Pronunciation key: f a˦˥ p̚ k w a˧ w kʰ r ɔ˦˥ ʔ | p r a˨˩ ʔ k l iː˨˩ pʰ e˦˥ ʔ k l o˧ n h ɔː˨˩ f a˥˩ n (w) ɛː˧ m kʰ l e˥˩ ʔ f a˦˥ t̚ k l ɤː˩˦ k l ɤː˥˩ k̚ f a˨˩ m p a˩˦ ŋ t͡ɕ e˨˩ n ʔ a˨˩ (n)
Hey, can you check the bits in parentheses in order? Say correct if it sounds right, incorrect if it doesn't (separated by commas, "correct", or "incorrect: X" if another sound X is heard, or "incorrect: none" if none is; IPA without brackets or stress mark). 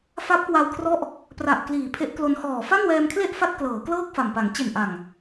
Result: correct, incorrect: ŋ